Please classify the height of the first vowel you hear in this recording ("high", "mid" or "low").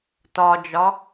low